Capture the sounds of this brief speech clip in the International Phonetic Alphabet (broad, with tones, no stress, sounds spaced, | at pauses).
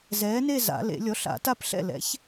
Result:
z ɛː˨˥ n e˥˧ z a̰˨˩˦ l ḛ˨˩˦ lʲ ɔ˨˥ ɬ a̰˨˩˦ t a˥˧ p ɬ ɛ̰˥˩ l ɛ̰˨˥ ç